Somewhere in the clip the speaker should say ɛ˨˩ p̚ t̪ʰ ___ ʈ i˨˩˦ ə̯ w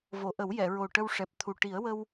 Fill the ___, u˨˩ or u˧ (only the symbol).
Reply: u˨˩